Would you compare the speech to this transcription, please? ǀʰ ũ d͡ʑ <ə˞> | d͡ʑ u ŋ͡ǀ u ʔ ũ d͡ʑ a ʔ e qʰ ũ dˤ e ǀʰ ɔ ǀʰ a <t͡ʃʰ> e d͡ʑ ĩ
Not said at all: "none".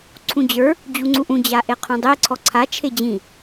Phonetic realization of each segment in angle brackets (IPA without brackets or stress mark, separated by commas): ə˞, t͡ʃʰ